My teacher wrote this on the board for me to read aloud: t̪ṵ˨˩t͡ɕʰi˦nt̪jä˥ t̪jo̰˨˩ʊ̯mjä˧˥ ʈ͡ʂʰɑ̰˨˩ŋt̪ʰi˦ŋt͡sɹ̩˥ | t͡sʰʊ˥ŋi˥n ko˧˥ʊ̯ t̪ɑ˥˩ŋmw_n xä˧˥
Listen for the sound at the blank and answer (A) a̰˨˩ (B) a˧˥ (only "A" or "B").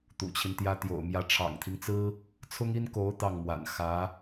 A